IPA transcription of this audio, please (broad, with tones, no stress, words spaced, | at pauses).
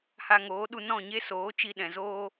ha˧ŋoː˨˦ ɗu˧ nɔ̃˦˨ɲe˦soː˨˦ t͡ʃi˧ɗɛ̃˨zoː˦